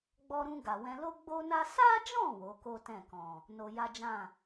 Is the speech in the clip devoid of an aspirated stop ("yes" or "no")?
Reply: yes